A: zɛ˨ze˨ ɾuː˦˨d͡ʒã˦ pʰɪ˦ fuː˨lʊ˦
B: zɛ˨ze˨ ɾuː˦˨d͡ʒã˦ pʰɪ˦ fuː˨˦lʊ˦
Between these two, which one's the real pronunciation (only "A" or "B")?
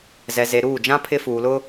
A